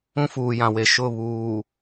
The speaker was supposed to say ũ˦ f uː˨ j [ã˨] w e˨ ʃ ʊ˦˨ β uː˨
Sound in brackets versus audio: correct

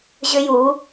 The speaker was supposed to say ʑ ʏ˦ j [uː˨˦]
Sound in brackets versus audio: correct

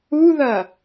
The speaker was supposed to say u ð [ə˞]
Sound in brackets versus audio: incorrect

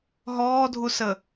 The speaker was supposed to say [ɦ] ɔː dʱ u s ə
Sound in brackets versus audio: correct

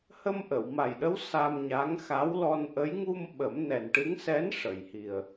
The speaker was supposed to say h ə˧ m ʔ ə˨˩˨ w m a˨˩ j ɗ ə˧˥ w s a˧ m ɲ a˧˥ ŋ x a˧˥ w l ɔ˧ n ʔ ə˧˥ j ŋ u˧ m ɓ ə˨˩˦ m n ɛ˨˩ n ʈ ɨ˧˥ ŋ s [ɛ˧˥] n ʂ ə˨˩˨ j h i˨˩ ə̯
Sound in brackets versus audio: correct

